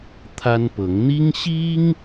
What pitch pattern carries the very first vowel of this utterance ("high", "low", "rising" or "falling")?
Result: high